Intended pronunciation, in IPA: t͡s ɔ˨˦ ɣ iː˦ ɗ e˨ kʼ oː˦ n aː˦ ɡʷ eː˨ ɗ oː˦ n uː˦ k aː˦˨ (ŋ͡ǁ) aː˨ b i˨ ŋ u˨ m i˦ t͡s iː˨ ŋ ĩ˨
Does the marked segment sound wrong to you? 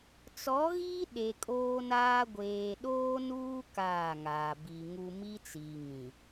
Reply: yes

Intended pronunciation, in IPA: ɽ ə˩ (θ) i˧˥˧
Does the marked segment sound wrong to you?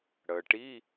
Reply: yes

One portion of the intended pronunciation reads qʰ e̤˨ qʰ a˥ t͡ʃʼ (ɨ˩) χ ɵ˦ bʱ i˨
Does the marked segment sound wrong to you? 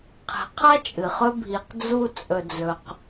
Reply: no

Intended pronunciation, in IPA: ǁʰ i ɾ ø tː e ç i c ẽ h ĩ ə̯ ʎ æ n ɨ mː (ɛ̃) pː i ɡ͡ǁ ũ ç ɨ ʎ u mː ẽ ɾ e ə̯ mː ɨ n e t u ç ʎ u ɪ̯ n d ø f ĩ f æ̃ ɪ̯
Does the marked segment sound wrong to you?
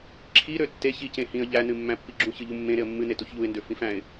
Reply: yes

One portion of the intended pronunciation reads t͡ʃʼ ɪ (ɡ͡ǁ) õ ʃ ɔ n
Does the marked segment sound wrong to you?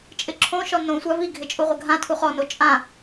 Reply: yes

